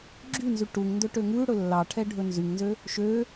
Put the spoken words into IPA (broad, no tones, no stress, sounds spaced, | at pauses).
ɡ͡ǁ y n z y ʈ u ŋ n d ɵ ʈ ø ŋ ʉ ɽ ɵ lː ɑ ʈʰ ɛ ɖʱ ɵ n z y ŋ n z ø | ʃ ø